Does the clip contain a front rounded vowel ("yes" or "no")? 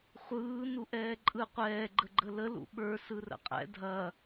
no